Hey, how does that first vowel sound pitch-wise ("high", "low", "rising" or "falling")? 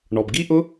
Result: low